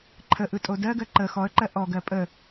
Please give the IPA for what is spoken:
ǃʰ ə ʔ ɯ tʼ o d ɜ ɡ ɜ ǃ ə x ɔ ə̯ ǃ ɜ ʔ ɔ ɡ ɜ pʼ ə

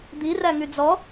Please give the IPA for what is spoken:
d̪ i r æ ŋ y d͡z ɔ

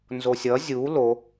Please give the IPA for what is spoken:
n z o sʲ ʌ zʲ u l o

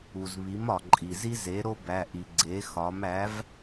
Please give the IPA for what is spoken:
u˩ z β i˩˥ m ɒ˩ ǃʼ i˩ z i˥ z e˩˥ ɾ o˥ b æ˩˧˩ ʔ i˩ ɡ͡ǀ e˩˥ x ɒ˩˥ m æ˩˥ v

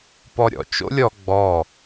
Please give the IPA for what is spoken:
p ɔ ɾʲ ɔ̰ t͡ʃ o̰ lʲ ɔ ɡ͡b ɔ

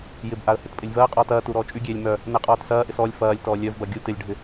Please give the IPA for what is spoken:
j ɪ b ʔ a ə̯ h ɪ t pʼ ɪ lʲ v ɐː qʼ ɔː t ɐː t u ɾ ɔː t͡ʃʼ y ɡʲ eː lʲ m œ | n ɛ qʼ ɔː t s ɐː ʔ ɪ s ɔ lʲ f ɐː lʲ t ɔː lʲ œ v b ɐ ɡʲ u t ɪ lʲ ɖʱ ɪ

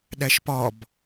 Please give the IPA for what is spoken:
ɗ æ ʃ p ɒ b

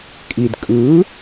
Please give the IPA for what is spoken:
kʼ i d kʼ ɯ

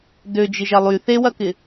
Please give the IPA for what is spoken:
d ø d͡ʒ ɪ ʒ ɐ lˠ y θ e w ɐ k ɪ

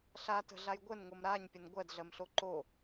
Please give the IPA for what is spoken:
ɬ a t ə̤ ɮ a j ɡʷ ə n ŋ o m ɾ a ɲ pʲ ə n ɡʷ ɜ d ɮ ɜ m ɬ o ǃ o

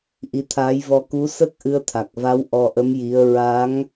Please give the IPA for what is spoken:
ʔ i˧ t̪ʰ aː˧˥ j v ɔ˧ k u˧˥ s ə˦˥ k̚ ʔ ɨ˧ ə̯ t̪ʰ a˨˩ k̚ v a˧˥ w ʔ ɔ˧ ʔ ə˧˥ m j i˧˥ ə̯ ɹ a˧˥ ŋ

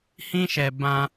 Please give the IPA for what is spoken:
h ĩ˦ ʃ ɛ˧ b ã˧

